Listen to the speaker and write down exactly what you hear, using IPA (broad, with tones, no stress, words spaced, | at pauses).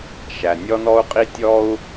ʃæ˩ nʲɔ˥nɔ˥u̯qʼi˥ tʲɔ˥u̯